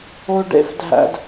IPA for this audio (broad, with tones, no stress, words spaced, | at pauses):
o˧ɖḛ˦fdʱæ̰˧d